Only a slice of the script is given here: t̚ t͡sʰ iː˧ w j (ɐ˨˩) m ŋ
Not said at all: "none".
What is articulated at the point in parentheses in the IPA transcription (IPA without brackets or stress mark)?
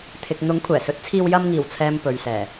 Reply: ɐ˧